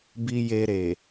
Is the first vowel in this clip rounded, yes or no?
no